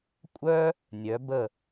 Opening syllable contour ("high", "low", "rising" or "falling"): high